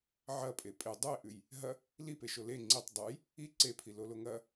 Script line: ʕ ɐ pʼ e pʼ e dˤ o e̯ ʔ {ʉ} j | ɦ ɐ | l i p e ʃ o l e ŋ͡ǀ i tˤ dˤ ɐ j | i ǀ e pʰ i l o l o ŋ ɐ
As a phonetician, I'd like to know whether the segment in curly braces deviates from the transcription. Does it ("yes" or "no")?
no